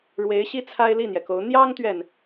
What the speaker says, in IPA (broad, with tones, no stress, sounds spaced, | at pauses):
ɻ w e˧˥ ɪ̯ ɕ i˥ t͡sʰ a˥ ɪ̯ l i˥˩ n̪ j ɛ˩ k o˧˥ ʊ̯ n̪ j ɑ˥ ŋ t̪ ɥ ɛ˨ n